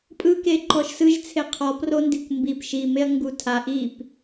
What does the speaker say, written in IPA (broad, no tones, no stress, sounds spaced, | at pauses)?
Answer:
pʼ ɯ k e ǃ ɔ ʃ s ɯ ʒ t͡sʰ e qʰ ɔ p r o n d i kʷ m b i p ʃ i m e ɐ̯ ŋ ɡ u tʰ a ʔ i p